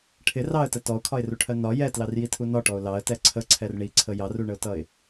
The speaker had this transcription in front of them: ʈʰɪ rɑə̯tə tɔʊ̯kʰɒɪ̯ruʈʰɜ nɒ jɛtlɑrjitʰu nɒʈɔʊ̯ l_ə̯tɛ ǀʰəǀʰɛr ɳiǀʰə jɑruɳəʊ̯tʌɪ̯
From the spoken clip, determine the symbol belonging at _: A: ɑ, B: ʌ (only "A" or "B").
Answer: A